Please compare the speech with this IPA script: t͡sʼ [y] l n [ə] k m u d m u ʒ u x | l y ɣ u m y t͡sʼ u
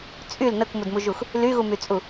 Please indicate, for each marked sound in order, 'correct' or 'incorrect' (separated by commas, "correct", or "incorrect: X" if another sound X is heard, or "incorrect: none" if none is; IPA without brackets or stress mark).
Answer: correct, correct